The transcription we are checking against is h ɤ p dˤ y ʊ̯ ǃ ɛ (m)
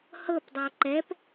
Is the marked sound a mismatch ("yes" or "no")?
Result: yes